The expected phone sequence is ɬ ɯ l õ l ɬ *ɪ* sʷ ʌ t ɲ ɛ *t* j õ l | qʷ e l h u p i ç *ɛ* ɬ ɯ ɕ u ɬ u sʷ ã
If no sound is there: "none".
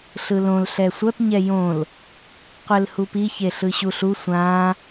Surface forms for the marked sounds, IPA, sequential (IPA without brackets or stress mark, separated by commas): ɛ, none, e